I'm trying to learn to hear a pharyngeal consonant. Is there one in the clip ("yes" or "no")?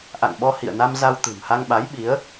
no